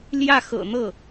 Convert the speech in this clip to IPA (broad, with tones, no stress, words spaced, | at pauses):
ljä˥˩xɤ̰˨˩n̪ɤ˥˩